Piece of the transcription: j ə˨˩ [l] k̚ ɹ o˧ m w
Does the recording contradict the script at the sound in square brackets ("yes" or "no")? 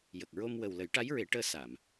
yes